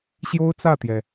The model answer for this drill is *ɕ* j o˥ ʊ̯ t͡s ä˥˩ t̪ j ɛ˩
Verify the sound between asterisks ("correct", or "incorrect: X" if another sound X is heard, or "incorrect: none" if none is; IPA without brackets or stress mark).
correct